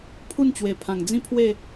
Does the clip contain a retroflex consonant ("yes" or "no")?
no